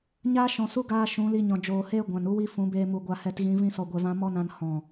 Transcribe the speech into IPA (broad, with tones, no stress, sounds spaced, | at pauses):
ɲ aː˦ ʃ ɔ̃˨ s u˦ ɡ aː˧ ʃ ũ˨˦ l i˧ ɲ ɔ̃˨ d͡ʒ oː˨ h eː˦ ɡʷ ã˨ n u˦ w i˦ f ũ˨˦ b eː˧ m u˨ ɡʷ a˧ h ɛ˧ t ɣ ĩ˨˦ v ĩ˦ s ɔ˧ ɡʷ ɛ˧ v ã˦ m ɔ˦ n ã˧ n h ɔ̃˨